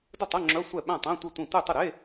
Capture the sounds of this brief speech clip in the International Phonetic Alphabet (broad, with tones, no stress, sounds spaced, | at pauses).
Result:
d ə˥˩ tˤ ɐ˧˥˧ ŋ͡ǁ œ˧˥˧ sʷ ɛ˥˩ ɓ æ̃˥˩ tˤ æ̃˧˥˧ tʷ e˥˩ tʷ ĩ˥˩ tʷ ɛ˥˩ tˤ ə˥˩ ɾ e˧˥˧